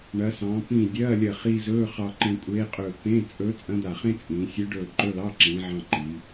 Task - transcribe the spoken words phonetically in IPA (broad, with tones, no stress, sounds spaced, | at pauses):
ɳ ɐ˩˧ s ɑ̃ː˩˧ p ĩː˧˩ dʲ ɐː˧˥˧ lʲ ɐ˧˩ χ i˧ z ɵː˧˥˧ χ ɑ˧ ǃ ẽ˧ kʷʼ eː˧˥ qʼ ɵː˧˩ p ẽ˧˥˧ t͡sʼ ɵ˧˥ t͡sʼ ɐ̃˧˥ d̪ a˧˩ χ ẽ˥ t͡sʼ ĩː˩˧ sʲ ɵ˧˥ ɖ ɵː˧˩ ǃ ɵ˧˥˧ l ɑ˧˥˧ ǁ ĩː˩˧ ʕ ɑ̃˧ ǃ i˩˧